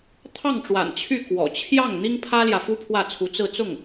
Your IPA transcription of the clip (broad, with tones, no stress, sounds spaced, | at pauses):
t̪ʰ ɑ˥˩ ŋ ʈ͡ʂ w a̰˨˩ n t͡ɕʰ y˥˩ k w ɔ̰˨˩ t͡ɕʰ j ɑ˥˩ ŋ n̪ i˥ ŋ pʰ ä˥ l j ä˨ f u˥ pʰ w ä˥˩ t͡sʰ u˧˥ t͡s ɹ̩˥˧ t͡s ʊ˥˩ ŋ